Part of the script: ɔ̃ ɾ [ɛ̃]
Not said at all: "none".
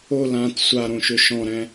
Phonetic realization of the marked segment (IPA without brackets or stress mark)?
ɛ̃